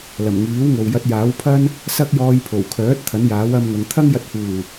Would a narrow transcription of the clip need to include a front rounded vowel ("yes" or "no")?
yes